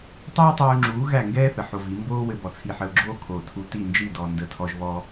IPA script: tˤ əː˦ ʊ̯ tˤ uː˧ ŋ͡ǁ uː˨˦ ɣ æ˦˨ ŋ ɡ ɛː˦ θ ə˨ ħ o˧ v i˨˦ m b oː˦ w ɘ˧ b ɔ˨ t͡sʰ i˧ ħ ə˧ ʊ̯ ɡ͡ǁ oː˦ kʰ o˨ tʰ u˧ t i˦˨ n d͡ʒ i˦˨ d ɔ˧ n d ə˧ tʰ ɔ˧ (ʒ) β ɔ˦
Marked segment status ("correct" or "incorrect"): correct